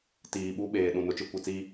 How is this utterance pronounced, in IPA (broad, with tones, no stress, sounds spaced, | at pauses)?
t iː˨ ɓ u˦ ɓ eː˨ ɗ ũ˨ n ʊ˨ t͡ʃ ɪ˦ kʷ i˨ t͡s iː˦